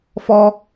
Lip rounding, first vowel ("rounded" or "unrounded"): rounded